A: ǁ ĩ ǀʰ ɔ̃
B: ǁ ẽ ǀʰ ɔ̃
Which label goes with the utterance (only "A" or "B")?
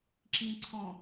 A